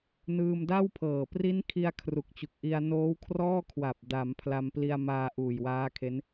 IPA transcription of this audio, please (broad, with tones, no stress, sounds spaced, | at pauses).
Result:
n ɯː˧ m d a˥˩ w pʰ ɤː˨˩ p r i˦˥ n kʰ i˧ a̯ kʰ r u˨˩ k̚ t͡ɕ u˨˩ k̚ ʔ i˧ a̯ n oː˦˥ w kʰ r ɔː˥˩ kʰ w a˨˩ p̚ d a˩˦ m pʰ l a˧ m p l i˧ a̯ m aː˧ ʔ uː˨˩ j w aː˦˥ kʰ e˦˥ n